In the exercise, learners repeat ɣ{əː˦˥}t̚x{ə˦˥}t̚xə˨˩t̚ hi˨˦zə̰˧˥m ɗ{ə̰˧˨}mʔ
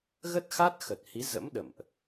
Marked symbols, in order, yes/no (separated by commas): no, no, yes